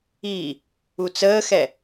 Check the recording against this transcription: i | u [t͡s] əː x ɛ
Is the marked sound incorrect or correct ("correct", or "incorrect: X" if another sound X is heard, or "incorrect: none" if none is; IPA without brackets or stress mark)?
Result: correct